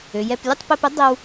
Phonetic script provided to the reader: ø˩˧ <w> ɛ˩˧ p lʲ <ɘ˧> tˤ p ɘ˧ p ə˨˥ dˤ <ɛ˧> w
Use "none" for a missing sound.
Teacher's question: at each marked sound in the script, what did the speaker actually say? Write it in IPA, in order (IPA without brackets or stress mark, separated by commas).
j, ɘ˥˨, ɛ˧